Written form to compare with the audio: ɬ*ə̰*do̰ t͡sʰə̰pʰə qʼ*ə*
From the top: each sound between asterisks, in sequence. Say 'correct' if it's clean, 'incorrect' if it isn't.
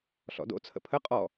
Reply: incorrect, incorrect

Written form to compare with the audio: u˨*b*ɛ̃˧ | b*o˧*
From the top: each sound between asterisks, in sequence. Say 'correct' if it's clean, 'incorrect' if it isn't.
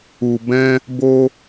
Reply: correct, correct

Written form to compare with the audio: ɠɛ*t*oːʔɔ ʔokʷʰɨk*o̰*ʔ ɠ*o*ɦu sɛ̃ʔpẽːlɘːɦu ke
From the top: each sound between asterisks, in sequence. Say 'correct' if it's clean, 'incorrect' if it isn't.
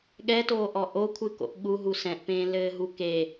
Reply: correct, correct, incorrect

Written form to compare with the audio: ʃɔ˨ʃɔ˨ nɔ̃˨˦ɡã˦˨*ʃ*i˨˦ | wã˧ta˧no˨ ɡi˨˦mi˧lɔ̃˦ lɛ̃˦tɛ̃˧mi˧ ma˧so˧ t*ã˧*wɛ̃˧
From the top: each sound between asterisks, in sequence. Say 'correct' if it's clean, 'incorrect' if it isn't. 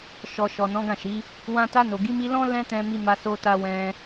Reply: correct, incorrect

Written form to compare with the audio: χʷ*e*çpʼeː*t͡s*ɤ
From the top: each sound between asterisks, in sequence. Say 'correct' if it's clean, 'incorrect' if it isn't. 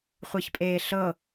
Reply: correct, incorrect

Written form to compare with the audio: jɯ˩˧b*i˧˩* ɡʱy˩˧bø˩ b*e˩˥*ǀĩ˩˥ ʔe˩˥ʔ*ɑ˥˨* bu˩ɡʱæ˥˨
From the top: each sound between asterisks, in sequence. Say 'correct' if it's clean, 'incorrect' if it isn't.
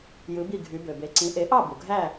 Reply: correct, incorrect, correct

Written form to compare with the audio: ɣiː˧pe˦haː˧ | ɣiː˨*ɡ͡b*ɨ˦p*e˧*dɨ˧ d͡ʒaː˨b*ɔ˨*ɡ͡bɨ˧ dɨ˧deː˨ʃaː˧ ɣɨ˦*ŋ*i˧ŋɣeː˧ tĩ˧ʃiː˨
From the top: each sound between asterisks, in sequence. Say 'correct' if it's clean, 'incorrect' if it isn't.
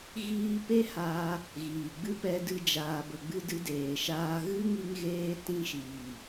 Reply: correct, incorrect, incorrect, correct

